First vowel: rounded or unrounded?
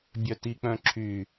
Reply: rounded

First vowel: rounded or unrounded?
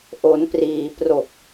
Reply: rounded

